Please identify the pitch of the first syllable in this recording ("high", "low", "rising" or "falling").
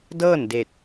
falling